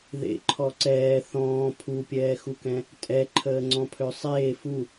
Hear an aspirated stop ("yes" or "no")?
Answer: yes